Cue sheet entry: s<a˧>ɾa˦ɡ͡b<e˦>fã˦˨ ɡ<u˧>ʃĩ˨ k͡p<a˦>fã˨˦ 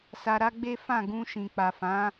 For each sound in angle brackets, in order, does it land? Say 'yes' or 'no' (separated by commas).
yes, yes, no, no